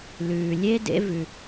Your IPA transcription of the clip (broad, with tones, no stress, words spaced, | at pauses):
lʉː˨lʲe˦ dḛ˦ vʉ˦